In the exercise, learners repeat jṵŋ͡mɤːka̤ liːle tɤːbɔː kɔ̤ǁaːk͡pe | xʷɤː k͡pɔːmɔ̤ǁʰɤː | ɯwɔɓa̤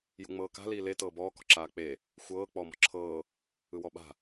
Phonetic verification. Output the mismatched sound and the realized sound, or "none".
none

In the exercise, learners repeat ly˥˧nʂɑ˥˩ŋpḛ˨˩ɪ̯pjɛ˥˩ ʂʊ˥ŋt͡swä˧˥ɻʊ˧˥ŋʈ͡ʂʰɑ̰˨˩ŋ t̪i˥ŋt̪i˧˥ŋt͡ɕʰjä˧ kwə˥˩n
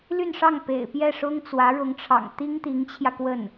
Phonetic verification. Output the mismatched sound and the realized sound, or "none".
none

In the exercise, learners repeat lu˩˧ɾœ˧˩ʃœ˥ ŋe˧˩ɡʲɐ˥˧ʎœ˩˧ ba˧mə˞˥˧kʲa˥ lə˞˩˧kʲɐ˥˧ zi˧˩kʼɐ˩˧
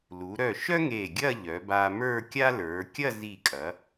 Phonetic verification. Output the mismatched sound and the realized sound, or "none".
none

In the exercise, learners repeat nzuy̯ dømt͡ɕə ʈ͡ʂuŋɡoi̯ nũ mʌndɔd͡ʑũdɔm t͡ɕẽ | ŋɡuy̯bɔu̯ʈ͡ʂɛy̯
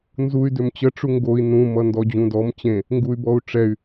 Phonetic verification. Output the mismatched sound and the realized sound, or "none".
none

